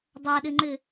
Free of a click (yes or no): no